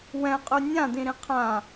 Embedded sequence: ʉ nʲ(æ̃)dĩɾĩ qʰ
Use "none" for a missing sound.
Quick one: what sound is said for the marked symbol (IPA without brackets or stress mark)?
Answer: ã